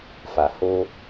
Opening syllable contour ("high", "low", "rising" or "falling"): low